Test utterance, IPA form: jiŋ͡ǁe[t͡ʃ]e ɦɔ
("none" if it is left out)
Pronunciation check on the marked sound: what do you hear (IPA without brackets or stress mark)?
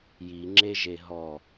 ʒ